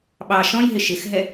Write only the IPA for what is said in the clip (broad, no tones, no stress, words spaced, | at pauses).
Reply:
ɓɑ ʃɔ̃jɦɪ ʃɪxɦɛ